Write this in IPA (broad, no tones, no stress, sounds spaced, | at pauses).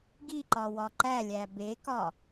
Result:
ɡ i ǃ ɒ w ɒ ǃ æ lʲ æ b e k ɒ